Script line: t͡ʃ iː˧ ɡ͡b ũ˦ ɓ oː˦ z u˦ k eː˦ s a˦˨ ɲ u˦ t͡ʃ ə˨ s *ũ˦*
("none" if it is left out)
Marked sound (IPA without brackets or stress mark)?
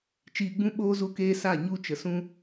ũ˦